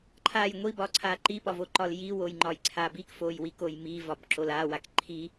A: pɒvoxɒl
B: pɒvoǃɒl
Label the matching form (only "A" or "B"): B